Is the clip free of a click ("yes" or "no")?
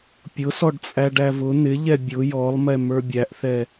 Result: yes